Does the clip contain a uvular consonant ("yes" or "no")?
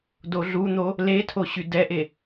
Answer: no